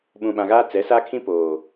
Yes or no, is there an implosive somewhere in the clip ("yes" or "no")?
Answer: yes